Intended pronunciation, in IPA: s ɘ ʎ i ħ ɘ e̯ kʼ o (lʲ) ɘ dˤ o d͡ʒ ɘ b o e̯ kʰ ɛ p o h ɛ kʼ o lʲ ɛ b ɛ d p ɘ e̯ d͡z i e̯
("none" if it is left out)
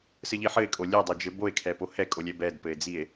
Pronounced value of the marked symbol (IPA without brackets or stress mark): lʲ